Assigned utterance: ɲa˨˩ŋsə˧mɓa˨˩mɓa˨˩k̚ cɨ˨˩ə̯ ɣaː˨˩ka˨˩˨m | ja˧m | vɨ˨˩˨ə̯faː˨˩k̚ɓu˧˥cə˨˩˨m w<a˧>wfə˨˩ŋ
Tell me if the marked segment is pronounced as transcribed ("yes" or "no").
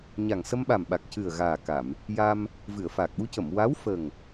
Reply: no